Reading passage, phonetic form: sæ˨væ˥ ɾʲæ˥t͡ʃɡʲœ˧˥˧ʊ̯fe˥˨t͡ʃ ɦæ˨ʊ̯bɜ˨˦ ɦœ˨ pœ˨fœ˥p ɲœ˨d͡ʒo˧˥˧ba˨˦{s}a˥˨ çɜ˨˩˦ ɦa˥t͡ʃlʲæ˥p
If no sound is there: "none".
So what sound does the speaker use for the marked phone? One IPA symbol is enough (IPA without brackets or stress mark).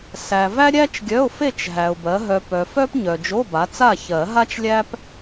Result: t͡s